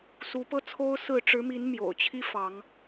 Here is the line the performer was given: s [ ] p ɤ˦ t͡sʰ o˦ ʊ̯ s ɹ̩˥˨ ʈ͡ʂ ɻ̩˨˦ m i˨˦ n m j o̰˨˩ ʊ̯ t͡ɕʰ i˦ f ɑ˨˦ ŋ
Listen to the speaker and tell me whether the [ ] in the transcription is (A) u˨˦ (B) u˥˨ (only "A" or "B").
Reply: A